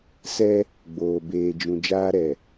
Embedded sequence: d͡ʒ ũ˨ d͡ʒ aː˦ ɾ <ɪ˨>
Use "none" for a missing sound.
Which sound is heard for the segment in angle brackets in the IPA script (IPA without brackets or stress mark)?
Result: ɛ˨